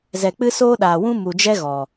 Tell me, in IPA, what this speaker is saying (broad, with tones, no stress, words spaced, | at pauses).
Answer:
zɛ˨k͡pɨ˦soː˦ɗaː˨ wũ˦mu˨d͡ʒɛ˦ ɣɔ˨